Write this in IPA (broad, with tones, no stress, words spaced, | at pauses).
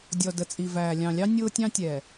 dʲɔ˨də˨t͡sʼi˨væː˨ lʲɑ̃˨lʲɑ˦ nʲʊː˦tʲɑ̃˦tʲɛ˨